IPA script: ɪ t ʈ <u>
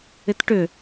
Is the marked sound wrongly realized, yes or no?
yes